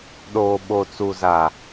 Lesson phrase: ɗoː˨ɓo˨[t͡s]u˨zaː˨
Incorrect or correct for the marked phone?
correct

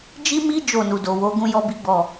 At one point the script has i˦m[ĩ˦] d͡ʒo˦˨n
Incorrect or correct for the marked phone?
incorrect: i˦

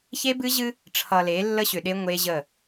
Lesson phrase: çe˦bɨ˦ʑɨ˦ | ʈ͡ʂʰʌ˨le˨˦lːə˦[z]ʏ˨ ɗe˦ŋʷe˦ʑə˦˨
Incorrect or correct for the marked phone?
incorrect: ɕ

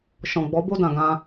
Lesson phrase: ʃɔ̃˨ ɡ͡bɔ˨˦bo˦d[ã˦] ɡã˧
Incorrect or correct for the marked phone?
incorrect: ã˨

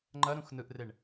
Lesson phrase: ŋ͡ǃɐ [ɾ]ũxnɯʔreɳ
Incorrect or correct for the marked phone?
correct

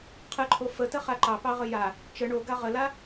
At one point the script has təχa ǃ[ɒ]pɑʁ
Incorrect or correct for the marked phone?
incorrect: ɑ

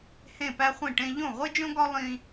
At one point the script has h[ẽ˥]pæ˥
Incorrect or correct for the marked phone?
incorrect: ẽ˥˨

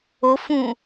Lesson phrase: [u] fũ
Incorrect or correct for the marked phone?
incorrect: o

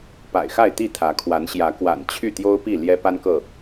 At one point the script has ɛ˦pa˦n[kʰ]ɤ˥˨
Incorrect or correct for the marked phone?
incorrect: k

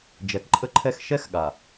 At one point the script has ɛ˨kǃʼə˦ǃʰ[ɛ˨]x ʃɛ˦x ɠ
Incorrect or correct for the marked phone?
incorrect: ɛ˦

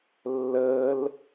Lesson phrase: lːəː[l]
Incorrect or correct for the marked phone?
correct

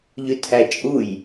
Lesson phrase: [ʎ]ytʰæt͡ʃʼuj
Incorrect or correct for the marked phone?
correct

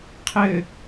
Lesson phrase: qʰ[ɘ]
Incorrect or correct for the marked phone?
correct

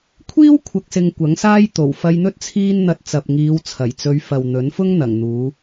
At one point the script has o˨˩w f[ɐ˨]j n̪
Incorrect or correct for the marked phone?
incorrect: ɐ˧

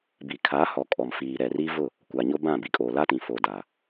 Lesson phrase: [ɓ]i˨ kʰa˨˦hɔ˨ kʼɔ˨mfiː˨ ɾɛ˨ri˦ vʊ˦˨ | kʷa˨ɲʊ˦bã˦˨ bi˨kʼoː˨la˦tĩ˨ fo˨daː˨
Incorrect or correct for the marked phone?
incorrect: b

